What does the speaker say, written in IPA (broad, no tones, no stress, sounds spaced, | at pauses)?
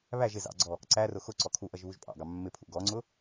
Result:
β æ ʒ ɪ z ɑ̰ ɡ͡ǀ ɔ | ǀ æ r ʊ x ʊ ǀ ɔ kʰ u ʔ ʌ ʒ β u ʒ pʼ ɑ̰ ɡ ɑ mː ɪ pʰ ṵ ɡ ɔ ŋ͡ǀ ʊ